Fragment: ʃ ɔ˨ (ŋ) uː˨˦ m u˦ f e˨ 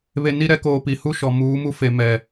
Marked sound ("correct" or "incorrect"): incorrect